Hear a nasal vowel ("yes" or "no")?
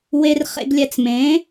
yes